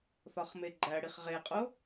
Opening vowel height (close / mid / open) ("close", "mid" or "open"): open